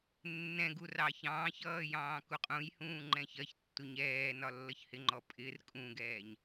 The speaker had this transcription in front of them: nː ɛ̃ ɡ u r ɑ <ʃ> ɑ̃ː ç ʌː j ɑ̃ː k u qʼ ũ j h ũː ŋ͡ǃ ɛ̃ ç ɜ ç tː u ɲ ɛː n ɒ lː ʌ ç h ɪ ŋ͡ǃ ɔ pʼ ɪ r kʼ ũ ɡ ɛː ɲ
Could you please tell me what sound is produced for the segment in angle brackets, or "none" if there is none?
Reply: ç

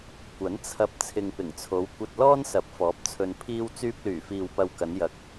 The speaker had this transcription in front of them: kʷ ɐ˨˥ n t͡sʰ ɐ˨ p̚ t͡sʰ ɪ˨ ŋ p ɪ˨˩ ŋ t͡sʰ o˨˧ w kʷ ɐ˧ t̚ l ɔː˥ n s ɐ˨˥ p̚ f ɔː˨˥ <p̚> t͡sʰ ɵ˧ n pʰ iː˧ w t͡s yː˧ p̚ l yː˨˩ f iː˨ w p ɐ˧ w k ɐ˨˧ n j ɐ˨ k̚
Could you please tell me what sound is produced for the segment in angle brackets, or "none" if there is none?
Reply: p̚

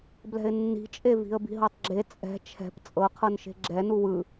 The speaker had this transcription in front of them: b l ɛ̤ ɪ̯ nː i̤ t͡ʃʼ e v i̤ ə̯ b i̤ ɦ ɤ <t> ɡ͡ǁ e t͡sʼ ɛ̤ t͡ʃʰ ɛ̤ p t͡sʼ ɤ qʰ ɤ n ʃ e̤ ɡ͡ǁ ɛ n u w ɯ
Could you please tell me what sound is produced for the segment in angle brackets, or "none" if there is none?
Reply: tˤ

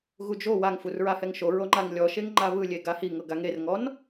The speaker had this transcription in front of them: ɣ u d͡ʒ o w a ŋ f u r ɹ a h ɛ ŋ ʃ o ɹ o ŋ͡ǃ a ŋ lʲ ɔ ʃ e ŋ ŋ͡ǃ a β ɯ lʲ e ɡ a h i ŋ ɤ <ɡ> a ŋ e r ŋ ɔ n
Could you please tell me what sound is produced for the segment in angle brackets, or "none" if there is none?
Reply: ɡ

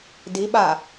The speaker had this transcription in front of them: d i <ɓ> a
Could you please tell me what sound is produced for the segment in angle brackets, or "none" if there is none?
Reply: ɓ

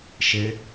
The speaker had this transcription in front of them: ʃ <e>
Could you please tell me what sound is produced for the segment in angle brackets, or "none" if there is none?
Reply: e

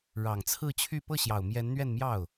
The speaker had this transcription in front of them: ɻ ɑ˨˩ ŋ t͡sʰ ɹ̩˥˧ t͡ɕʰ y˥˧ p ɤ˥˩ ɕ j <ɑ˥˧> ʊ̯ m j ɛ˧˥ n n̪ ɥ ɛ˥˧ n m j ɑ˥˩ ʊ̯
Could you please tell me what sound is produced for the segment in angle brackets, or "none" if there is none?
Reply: ɑ˨˩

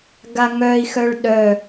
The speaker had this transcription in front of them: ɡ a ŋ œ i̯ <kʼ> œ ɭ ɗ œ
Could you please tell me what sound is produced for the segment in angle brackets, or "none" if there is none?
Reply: x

